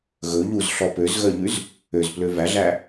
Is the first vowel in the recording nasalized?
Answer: no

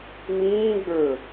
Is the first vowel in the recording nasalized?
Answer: yes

